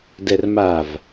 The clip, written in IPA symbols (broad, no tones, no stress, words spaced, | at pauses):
dɛrmav